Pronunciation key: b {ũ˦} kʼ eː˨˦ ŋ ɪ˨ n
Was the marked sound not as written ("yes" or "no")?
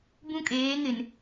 no